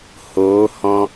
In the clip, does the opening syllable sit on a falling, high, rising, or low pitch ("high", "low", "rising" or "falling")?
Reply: rising